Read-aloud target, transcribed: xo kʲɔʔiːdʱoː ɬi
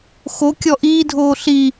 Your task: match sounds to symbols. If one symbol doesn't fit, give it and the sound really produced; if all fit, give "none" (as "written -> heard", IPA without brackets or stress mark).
none